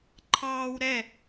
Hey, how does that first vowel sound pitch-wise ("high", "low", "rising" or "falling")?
high